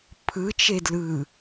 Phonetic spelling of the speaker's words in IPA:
pʰ ɯ t͡ʃ e d l ɯ

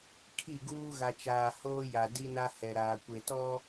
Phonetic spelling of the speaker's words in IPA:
kʰ i˦˨ ɡ uː˦ ɣ a˨ t͡ʃ aː˨ h oː˦ j a˨ d i˦ n a˦ h ɛ˨ ɾ aː˨ kʷ e˨ t ɔ˦

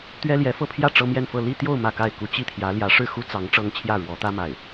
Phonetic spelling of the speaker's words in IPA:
t̪ ɥ ɛ˥ l j ɛ˧˥ f ɤ˥˧ pʰ j ä˥˩ ʈ͡ʂ ɤ˥ m j ɛ˥˧ n f ɤ˥˧ l i˥˧ t̪ j o˥˧ ʊ̯ m ä˥˧ k a˥˩ ɪ̯ k u˥ t͡ɕ i˥˩ t̪ʰ j ä˧˥ l j ä˧˥ ʂ ɻ̩˥˩ x u˥ t͡s ɑ˧˥ ŋ ʈ͡ʂ ɤ˥ ŋ t͡ɕʰ j ä˥˩ ɻ w ɔ˧˥ t̪ ä˥ m a˥˩ ɪ̯

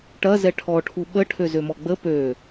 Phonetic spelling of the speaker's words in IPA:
ʈ ɐ z ɛ ʈʰ ɔ ʈʰ u ɓ ə ʈʰ ø z ø m ɔ ɡ͡b ə p ø

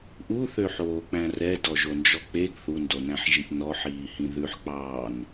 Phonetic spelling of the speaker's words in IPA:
ʔ u θ ø ħ oː k͡p æ̃ r ɛ d ɔ ʒ o n d͡ʒ ɔ k͡p e ɡ θ u n d o n æ̃ ħ ʒ i ʔ n ɔ ħ iː h ĩ ð ʉ ħ k͡p ɑː n

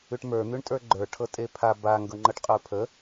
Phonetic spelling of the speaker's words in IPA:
ʉ ʈ m ə˞ n̪ ʉ ɳ tʼ ə˞ ɡ͡ǃ ə˞ ʈʰ ɤ tʼ e pʰ a b a ŋ ɡ ɤ ŋ͡ǃ ɤ ʈ qʼ ə˞ pʰ ə

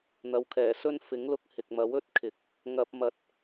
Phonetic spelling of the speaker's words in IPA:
n̪ ɐ˨ w kʰ ɛː˨˩ s ɵ˥ n f ɪ˨˥ ŋ l ʊ˧ k̚ h ɪ˨ k̚ m ɐ˨˥ w ɵ˥ t̚ kʰ ɪ˨˥ k̚ | ŋ ɐ˧ p̚ m ɐ˧ t̚

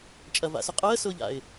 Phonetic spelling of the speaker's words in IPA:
t͡ʃʼ ɐ v a̰ s ʊ qʼ əː s ʊː ʎ a̰ ɪ̯

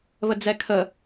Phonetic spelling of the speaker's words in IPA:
β ə d͡z ɛ kʰ ə

